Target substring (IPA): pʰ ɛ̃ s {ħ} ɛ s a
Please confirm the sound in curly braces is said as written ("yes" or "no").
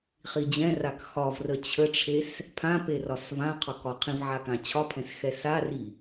no